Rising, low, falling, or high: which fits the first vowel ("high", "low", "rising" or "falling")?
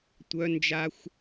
high